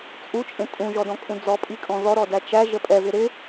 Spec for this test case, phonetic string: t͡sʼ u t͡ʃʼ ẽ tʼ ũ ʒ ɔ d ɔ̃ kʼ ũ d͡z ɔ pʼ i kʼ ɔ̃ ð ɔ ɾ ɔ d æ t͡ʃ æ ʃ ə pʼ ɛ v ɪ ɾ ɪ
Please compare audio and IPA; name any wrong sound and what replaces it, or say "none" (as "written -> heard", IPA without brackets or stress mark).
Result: ʃ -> ʒ